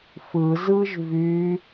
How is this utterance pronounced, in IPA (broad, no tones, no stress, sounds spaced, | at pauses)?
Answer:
f ɯ z ɯ ʒ v y